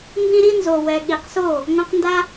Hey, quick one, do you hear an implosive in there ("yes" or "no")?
yes